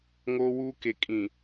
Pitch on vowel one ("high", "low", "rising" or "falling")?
high